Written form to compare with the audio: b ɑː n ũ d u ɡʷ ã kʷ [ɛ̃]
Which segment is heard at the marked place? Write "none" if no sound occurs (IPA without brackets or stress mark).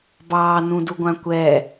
ɛ